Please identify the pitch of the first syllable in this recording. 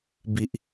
low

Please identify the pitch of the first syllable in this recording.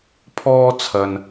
high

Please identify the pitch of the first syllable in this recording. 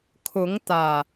rising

